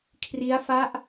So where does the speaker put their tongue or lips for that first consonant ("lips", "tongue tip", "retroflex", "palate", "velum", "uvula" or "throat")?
velum